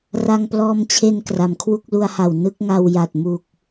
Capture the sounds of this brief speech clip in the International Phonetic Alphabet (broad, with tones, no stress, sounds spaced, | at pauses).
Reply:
r a˧ ŋ p l ɔː˧ m t͡ɕʰ e˧ n k r a˩˦ m kʰ w u˥˩ k̚ l u˧ a̯ h a˨˩ w n ɯ˥˩ k̚ ŋ a˧ w j a˨˩ t̚ m u˨˩ k̚